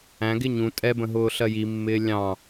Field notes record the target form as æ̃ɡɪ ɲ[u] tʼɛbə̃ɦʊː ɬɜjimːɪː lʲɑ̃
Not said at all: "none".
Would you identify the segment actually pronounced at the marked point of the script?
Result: ũ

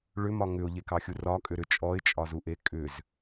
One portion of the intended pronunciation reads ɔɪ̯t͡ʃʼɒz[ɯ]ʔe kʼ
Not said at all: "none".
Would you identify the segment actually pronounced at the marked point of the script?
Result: u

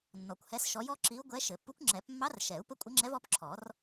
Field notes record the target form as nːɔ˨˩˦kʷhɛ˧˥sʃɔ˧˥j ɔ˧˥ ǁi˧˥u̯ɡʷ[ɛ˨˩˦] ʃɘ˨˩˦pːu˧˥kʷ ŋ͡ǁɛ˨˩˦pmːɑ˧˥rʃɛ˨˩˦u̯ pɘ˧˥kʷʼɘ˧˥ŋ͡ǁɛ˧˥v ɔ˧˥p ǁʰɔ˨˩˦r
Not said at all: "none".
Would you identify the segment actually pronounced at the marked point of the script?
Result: ɛ˧˥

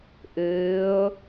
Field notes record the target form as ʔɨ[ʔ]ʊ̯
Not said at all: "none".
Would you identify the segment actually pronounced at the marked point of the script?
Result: none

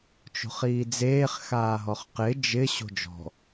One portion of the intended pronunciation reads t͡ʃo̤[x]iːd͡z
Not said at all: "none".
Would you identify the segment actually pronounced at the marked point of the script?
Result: χ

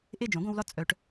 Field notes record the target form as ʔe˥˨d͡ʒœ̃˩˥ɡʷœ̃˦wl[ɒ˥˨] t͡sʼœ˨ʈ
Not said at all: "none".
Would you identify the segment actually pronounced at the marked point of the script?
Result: ɒ˥˨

